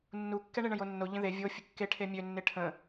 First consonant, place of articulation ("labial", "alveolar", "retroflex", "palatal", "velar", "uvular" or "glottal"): alveolar